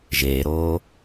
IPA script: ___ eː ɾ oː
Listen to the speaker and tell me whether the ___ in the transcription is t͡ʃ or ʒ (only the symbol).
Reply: ʒ